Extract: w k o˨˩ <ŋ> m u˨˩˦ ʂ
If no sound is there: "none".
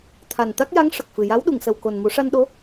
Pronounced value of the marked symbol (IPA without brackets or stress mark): n